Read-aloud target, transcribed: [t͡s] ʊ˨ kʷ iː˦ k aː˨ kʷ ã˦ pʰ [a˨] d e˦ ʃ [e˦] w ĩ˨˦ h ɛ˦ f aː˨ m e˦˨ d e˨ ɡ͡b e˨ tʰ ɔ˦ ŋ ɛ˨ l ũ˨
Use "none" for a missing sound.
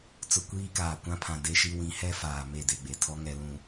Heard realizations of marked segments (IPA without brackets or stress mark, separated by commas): t͡s, ã˨, i˦